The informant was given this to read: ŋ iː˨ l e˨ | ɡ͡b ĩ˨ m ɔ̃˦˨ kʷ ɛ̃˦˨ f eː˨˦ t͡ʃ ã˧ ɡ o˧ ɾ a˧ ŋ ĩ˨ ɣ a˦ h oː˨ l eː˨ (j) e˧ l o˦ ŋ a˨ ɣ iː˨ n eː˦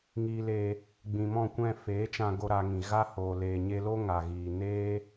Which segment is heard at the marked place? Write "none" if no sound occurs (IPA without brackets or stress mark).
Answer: ɲ